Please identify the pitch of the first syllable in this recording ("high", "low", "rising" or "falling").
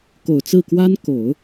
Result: low